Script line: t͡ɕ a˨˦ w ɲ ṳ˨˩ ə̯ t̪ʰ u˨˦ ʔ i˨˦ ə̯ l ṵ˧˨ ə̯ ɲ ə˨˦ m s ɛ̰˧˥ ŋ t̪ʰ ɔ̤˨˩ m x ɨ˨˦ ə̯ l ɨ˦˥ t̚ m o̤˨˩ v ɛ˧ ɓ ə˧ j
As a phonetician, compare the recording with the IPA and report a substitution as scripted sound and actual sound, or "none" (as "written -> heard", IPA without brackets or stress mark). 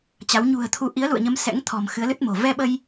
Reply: none